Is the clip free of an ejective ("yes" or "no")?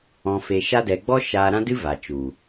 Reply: yes